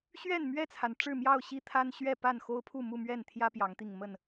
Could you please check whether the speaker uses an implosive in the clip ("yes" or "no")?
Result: no